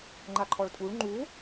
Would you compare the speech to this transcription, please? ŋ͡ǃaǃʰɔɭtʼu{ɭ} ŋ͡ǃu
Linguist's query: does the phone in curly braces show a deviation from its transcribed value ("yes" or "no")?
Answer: no